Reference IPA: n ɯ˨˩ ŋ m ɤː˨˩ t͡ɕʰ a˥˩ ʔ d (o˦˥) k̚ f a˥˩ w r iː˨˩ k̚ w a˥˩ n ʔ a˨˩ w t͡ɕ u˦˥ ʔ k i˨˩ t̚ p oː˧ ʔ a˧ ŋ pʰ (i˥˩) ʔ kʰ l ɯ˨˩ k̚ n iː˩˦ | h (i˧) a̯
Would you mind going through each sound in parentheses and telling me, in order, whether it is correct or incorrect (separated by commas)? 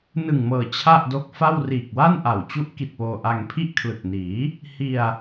correct, correct, correct